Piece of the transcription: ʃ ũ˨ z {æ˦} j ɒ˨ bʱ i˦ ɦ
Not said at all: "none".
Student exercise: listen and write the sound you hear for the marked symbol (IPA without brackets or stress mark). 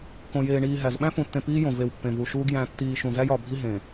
æ˦